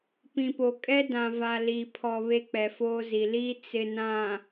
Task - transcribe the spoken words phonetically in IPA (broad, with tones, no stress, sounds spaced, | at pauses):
p ĩ˨ p o˨ kʼ ɛ˦ d ã˨ v a˨ l i˨ pʰ ɔ˨ β e˦ k͡p ɛ˨ f oː˦ z i˨ l iː˦ t͡s ɪ˨ n ã˨